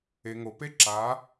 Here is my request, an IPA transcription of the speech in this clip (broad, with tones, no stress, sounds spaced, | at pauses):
e˩ ŋ o˩ p e˧˥ ǁ a˩˧